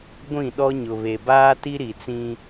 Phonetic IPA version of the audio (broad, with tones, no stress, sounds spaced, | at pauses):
ɡʷ ĩ˦˨ ɗ ɔ˦ ɲ ʊ˨ β e˨ b aː˦ t i˦ ɾ i˨ t͡s ĩ˦